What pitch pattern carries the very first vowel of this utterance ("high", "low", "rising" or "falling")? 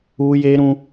high